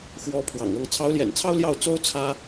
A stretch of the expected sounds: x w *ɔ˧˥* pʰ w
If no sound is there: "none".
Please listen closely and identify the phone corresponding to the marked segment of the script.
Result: ɔ˧˥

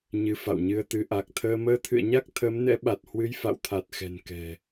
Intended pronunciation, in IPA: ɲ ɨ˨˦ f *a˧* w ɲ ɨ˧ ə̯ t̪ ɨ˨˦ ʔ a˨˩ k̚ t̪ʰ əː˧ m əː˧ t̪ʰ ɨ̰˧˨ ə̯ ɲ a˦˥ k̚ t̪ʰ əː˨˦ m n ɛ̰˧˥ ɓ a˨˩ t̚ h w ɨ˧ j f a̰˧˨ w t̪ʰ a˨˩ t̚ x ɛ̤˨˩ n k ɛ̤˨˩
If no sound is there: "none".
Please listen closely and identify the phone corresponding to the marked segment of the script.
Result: a̰˧˨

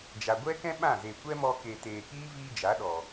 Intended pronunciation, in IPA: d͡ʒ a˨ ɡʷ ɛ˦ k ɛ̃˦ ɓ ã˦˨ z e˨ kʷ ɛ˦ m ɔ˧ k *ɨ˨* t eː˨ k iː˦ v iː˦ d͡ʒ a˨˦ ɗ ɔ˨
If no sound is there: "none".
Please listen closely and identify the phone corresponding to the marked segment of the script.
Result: e˨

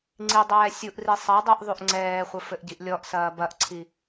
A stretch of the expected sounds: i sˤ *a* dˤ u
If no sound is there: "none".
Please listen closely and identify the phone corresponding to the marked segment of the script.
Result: ɐ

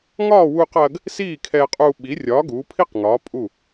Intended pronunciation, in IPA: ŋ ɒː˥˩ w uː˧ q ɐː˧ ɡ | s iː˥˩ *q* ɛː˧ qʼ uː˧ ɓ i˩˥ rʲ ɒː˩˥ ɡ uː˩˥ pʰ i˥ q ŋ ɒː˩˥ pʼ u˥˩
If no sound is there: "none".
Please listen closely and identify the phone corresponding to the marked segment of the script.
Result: kʰ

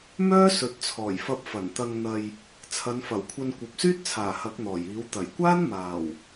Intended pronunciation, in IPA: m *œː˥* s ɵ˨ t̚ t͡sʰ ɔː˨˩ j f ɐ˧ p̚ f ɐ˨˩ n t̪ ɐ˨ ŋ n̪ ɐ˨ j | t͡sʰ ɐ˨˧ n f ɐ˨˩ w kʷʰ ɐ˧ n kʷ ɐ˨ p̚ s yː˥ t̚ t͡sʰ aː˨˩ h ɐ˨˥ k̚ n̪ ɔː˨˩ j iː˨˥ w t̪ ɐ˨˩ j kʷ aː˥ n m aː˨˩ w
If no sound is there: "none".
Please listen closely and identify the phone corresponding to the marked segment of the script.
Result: œː˥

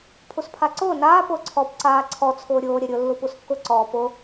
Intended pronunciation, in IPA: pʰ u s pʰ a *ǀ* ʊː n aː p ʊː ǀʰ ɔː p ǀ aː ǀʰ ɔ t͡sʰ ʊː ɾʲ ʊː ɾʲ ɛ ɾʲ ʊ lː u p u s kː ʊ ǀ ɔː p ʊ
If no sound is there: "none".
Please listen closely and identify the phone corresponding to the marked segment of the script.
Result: ǀ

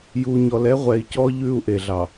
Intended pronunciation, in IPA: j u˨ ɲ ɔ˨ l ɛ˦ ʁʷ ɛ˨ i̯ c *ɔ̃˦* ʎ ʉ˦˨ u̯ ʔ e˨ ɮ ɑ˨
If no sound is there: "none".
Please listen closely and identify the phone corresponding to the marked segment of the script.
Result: ɔ˦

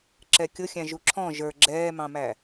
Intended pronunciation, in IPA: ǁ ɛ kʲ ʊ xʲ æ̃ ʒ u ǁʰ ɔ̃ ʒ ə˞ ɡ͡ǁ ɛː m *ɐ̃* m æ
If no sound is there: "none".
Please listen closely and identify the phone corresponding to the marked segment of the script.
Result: ɑ̃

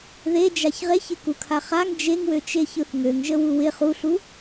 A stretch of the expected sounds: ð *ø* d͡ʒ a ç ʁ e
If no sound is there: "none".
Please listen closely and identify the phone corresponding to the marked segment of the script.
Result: e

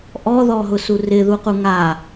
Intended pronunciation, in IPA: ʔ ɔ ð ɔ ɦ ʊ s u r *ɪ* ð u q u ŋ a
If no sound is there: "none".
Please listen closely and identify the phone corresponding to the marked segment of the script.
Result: ɪ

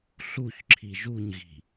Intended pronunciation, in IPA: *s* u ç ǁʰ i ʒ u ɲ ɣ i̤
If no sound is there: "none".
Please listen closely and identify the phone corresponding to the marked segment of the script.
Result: ɬ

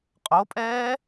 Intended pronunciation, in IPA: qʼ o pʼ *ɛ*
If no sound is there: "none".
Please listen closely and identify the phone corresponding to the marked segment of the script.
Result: ɛː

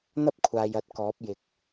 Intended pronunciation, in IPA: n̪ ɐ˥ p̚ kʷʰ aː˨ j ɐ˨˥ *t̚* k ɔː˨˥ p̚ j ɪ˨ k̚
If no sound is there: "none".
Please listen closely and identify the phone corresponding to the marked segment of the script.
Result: t̚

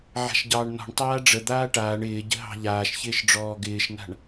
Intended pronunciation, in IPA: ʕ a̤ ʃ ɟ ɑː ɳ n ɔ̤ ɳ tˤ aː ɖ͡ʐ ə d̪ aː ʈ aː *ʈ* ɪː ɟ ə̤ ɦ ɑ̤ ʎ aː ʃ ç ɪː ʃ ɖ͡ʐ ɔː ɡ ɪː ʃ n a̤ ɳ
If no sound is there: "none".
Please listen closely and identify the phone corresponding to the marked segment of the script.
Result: ɳ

